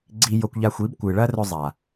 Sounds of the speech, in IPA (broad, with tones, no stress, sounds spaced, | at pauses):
ɡ͡ǀ i˧ j o˧ kʷ ʎ a˧ xʷ i˨˦ b kʷ ɨ˨ ɭ ɐ˦ r ɵ˧ zˤ a˨